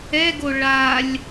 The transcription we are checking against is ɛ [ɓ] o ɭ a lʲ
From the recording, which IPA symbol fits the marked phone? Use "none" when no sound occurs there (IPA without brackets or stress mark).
ɡ